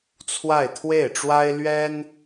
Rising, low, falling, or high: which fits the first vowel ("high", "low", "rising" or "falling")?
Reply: falling